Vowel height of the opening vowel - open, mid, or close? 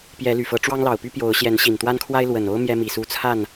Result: mid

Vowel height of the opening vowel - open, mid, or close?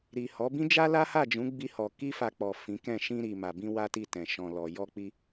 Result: close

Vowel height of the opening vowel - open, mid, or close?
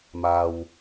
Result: open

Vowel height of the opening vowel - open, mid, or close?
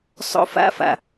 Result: mid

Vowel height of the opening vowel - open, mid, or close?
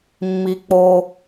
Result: close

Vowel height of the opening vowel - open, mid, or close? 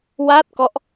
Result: open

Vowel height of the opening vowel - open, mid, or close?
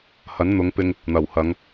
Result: open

